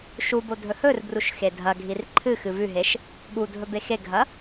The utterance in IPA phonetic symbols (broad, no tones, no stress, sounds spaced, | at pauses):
ʃ u b o dʱ ɵ h ɵ r b r u ʃ x e dʱ ɐ ɡʱ i r ǃʰ ɨ x ɨ v ʉ ɦ e ʃ | ɠ u dʱ ɵ b e x e ɡʱ ɐ